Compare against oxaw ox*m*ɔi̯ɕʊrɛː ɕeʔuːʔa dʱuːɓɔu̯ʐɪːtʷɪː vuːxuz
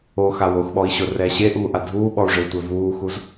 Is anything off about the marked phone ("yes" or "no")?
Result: yes